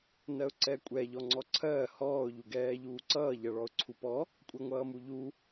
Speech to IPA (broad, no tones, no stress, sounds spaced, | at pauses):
n ɜ ʊ̯ ǀ ɛ kʷʼ ɛ ʎ ɔ ŋ͡ǀ ɔ ǀʰ ɜː h ɔː ʊ̯ ʎ u ɡ ɛː ʎ uː ǀ ʌː ʎ ʌ ɭ ɔ ʊ̯ ǀʰ u p ɔ | kʷʼ ɛ ŋʷ ʌː m u ʎ u